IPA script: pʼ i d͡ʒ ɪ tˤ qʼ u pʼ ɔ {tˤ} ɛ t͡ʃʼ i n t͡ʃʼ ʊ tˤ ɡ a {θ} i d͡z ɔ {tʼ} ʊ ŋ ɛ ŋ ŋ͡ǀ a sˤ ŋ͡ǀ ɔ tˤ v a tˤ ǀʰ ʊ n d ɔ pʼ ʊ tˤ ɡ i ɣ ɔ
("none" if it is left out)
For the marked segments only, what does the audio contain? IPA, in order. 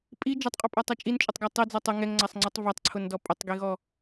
tˤ, tˤ, tˤ

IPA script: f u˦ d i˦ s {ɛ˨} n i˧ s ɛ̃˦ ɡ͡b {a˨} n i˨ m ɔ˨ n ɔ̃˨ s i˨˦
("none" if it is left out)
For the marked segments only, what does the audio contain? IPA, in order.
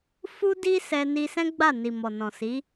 ɛ˧, a˦˨

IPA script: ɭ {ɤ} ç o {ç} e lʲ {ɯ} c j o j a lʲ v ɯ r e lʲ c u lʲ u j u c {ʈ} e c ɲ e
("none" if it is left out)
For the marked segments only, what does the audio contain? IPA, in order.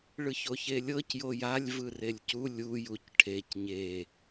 ɯ, ç, ɤ, ʈʰ

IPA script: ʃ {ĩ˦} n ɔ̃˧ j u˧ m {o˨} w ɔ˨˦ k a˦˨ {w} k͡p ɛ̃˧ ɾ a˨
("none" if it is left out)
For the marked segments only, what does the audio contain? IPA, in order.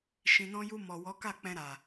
ĩ˨, ɔ˨, none

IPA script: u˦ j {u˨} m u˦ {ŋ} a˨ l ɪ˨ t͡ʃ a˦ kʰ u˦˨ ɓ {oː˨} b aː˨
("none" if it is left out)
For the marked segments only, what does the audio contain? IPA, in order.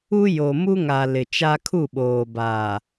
o˨, ŋ, oː˨

